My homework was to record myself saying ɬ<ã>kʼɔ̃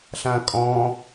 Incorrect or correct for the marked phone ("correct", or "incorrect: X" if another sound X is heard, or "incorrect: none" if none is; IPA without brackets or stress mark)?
correct